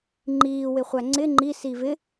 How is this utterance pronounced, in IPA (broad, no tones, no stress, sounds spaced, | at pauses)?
ŋ͡ǃ iː w ɪ χʷ æ ŋ͡ǀ ɪ ŋ͡ǃ i s i v ɪ